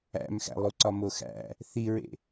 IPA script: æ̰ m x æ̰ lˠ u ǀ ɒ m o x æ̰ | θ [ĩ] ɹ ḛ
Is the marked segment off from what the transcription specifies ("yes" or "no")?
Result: yes